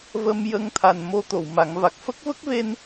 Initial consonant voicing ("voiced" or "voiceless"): voiced